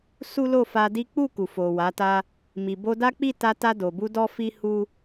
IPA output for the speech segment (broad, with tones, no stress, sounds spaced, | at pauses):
s u˦ l o˦˨ f a˧ d i˦ k͡p u˦˨ k u˨ f o˨ w a˨˦ t a˦ | m i˨ b o˧ d a˦ k͡p i˦˨ t a˧ t a˧ d o˨ b u˧ d ɔ˦ f i˦ h u˦